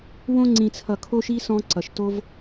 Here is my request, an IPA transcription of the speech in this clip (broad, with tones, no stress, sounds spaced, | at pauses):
w õ˧ ŋ͡ǀ ĩ˨ t͡sʰ ʌ˨ kʰ o˦ ʃ i˦ s ɔ̃˧ ǀ ʌ˨ ʃ t o˧ v